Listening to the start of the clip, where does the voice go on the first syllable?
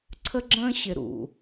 high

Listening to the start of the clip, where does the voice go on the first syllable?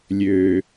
low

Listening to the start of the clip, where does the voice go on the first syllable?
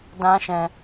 high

